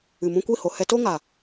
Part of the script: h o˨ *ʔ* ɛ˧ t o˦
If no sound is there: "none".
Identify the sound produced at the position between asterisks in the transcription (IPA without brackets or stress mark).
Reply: h